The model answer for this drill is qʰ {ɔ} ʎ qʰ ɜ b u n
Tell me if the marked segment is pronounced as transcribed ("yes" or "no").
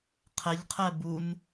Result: no